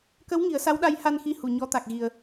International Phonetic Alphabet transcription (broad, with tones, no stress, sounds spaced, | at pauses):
k ə˧˥ w ŋ i˨˩˦ ə̯ s a˧˥ w ɗ a˧˥ j h a˧ n x i˧˥ h u˨˩˨ ɲ ɔ˧˥ t̪ a˨˩ k̚ ɣ i˨˩ ə̯